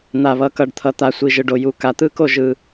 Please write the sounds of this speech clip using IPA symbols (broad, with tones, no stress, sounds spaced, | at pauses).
n̪ a˨˩ β ʌ˨˩ k ʌ˨˩ ɖ t̪ʰ ʌ˨˩ t̪ a˨˩ sʷ i˨˩ ʒ ɯ˨˩ ɖ o˨˩ j u˨˩ k a˨˩ t̪ ɯ˥˩ k o˥˩ ʒ ɯ˨˩